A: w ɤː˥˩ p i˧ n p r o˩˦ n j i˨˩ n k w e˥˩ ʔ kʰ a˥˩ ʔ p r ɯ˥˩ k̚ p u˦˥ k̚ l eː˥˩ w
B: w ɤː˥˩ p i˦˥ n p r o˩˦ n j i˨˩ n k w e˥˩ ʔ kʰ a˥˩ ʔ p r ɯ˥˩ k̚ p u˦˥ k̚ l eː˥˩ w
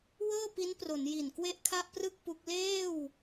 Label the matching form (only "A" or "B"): B